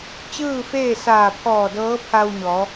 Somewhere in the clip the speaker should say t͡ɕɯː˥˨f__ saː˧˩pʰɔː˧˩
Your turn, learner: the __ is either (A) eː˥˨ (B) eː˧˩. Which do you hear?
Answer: A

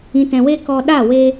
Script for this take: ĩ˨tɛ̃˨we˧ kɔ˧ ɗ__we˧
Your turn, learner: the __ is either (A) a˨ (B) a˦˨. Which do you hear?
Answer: B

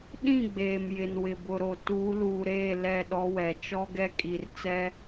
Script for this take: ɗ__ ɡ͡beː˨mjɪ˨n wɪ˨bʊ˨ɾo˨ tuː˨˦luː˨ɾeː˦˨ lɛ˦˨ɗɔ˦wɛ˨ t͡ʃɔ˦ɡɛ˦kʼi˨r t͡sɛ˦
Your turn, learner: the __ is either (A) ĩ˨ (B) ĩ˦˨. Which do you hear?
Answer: B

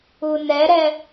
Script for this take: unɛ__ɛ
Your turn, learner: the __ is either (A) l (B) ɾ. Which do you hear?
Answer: B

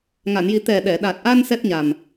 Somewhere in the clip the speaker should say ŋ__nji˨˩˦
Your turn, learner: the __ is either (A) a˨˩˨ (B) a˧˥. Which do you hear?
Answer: A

